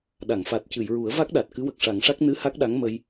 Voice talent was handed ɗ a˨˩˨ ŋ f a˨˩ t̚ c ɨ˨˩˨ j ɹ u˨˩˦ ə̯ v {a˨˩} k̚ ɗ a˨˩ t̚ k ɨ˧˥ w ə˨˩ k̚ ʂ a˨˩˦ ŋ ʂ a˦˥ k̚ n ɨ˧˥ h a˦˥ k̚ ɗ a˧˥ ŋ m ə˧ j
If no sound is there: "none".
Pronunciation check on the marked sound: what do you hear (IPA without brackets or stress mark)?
a˦˥